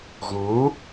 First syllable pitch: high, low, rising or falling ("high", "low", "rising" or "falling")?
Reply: rising